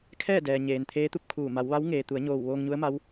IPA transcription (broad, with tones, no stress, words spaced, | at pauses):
kʰɛː˥˨dɛː˩ɲeː˩n t̪ʰeː˧˥t̪u˧p̚kʰuː˧˩ ma˩˧wʋa˧˥wŋeː˩t̪u˩˧ə̯ ɲoː˧˩wʋoː˧ŋɲu˧˥ə̯ma˧˥w